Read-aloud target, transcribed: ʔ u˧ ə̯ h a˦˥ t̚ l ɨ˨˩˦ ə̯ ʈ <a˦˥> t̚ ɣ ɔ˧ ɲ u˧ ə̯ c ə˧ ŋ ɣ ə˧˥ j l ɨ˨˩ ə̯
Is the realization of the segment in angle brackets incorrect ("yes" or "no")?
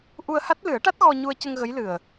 no